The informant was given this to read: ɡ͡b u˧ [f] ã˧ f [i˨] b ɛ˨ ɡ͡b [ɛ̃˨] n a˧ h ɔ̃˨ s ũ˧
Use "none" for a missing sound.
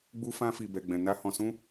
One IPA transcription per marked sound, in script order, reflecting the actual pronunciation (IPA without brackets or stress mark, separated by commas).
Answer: f, i˨, ɛ̃˨